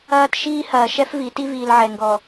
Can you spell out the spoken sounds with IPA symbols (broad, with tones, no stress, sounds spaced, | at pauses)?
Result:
ɐː˦ t ʃ iː˦ h ɐː˨ ʃ ɛ˦ f v i˨˦ t i˦ v iː˨ l ʕ ɛ˨ ŋ ɡ ɔ˨